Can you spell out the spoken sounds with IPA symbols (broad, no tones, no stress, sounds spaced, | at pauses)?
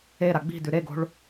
e ɾ a ɡ͡b i̤ d ʉ ɾ e ɡ o̤ ɭ